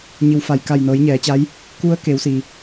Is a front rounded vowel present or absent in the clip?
absent